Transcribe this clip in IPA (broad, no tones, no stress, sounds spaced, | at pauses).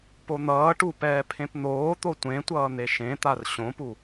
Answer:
p o n̪ ʌː ʈ u p ɛː pʰ ẽ p n̪ oː t̪ o tʷ ẽ tʷ ʌː n̪ e ʃ ẽ t̪ a r ɕ õ p u